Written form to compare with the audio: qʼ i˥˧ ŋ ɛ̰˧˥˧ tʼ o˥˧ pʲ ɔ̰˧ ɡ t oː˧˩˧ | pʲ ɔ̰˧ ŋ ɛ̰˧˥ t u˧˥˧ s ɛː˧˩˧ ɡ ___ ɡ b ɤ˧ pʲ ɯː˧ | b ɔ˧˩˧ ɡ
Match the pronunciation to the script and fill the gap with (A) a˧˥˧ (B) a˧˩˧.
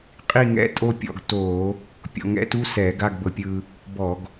A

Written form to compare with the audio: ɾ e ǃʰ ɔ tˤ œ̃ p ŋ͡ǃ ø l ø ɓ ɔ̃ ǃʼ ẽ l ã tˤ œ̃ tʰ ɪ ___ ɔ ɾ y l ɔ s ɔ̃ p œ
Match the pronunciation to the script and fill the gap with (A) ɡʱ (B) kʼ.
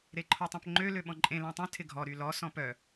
A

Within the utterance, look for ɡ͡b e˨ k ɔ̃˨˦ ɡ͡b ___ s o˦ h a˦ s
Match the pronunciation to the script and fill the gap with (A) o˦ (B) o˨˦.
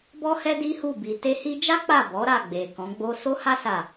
A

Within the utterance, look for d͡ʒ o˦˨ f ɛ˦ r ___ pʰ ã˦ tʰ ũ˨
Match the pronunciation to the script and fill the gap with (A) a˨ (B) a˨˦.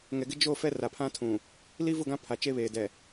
A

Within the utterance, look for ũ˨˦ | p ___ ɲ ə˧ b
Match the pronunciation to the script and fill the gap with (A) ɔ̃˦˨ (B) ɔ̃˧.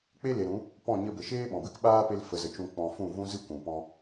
A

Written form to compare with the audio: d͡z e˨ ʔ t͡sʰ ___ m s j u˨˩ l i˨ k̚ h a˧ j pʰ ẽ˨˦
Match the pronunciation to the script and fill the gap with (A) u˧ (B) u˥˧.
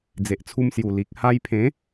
A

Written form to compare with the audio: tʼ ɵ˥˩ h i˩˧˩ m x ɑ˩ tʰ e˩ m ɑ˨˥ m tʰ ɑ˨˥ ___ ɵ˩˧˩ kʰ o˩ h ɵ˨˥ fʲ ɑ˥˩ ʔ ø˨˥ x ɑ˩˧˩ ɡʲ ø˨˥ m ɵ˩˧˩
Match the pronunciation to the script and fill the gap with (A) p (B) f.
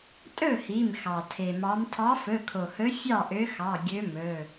B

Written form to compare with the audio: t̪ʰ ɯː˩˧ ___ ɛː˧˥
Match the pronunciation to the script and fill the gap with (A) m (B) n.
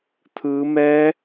A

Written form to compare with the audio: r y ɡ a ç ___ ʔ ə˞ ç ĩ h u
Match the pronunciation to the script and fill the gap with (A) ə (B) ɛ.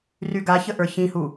A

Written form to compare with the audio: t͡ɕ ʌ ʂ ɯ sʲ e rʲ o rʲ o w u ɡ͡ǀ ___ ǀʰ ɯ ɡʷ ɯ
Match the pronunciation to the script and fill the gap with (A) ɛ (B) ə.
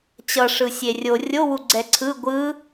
A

